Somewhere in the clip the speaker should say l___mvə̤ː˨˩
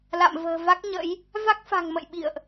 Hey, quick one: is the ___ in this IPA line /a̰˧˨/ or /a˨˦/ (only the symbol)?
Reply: a̰˧˨